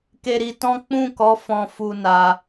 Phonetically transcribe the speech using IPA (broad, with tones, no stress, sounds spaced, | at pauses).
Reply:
k e˧ ɾ i˧ t ɔ̃˦ k͡p ũ˦˨ k ɔ˨˦ f ɔ̃˧ f u˧ n a˧